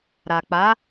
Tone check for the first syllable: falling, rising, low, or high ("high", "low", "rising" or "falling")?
low